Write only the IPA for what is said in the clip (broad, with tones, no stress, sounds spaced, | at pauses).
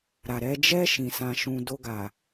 ɾ a˨ ɾ ɛ˧ d͡ʒ ɛ˦ ʃ ĩ˧ s ã˧ ʃ ũ˧ d o˧ ɡ a˨